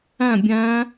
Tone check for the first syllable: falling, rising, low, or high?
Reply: falling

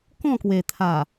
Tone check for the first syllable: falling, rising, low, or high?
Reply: falling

